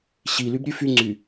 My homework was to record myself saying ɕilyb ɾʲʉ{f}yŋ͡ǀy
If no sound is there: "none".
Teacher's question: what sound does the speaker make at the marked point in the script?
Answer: f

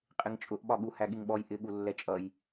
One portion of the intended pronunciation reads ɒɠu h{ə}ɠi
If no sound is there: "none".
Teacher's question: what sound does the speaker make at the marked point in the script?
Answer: æ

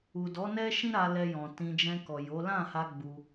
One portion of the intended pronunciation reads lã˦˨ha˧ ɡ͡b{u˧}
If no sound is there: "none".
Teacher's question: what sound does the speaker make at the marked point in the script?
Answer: u˧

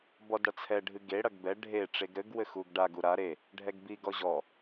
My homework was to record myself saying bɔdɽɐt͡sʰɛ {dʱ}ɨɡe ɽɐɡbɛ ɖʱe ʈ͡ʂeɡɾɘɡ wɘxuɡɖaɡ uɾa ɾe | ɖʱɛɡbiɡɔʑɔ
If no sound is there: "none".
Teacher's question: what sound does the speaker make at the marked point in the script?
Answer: ɖʱ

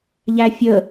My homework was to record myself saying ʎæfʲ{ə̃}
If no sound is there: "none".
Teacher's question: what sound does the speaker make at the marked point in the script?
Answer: ə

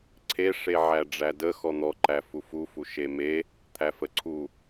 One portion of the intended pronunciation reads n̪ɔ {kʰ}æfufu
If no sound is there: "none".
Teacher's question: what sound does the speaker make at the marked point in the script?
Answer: ǃ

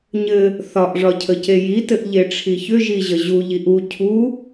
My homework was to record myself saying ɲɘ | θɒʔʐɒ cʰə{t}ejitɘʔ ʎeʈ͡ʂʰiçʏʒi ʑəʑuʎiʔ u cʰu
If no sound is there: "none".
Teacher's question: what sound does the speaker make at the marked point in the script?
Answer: c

